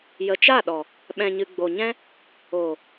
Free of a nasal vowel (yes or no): no